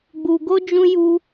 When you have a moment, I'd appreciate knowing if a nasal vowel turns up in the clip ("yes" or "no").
yes